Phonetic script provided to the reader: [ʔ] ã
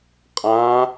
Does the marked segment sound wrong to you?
yes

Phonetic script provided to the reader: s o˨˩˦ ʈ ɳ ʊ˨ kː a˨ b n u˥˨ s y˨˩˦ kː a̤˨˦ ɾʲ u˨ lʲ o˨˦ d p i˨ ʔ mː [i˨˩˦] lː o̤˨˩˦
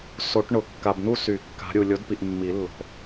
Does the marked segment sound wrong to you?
no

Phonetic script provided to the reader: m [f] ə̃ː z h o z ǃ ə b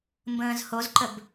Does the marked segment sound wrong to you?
yes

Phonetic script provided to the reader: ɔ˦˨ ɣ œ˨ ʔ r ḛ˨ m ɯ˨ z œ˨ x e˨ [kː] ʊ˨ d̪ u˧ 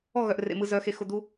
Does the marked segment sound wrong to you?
yes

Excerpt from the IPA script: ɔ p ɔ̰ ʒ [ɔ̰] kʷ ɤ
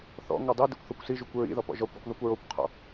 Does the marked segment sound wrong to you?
yes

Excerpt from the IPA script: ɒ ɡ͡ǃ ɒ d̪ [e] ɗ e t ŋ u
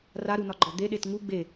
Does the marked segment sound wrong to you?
no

